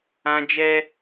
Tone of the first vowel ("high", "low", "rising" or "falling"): high